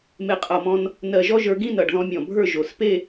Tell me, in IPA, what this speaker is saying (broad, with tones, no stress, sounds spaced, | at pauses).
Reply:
m e˧˩ qʼ ʌ˧˩ m ɔ̃˧ n | n ɜ˧˩ ʒ ɔ˥ ʒ ə˞˧ ɡ ĩ˥˧ n ʌ˧˩ ɖ ð ɔ̃˧ mʲ ɔ̃˧˩ bʱ ə˞˥˧ ʒ o˩˧ s p e˥˧